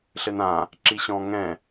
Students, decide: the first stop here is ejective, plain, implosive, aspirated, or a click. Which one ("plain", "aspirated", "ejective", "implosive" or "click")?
click